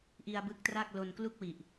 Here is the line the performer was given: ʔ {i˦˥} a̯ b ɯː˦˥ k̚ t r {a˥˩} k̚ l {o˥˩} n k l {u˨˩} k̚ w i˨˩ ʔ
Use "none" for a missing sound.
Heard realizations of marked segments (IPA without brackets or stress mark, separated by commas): i˧, a˥˩, o˧, u˥˩